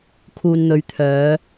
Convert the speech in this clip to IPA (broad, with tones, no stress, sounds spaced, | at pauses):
kʰ uː˨ n n̪ ɵ˨˧ ɥ t̪ʰ œː˨˧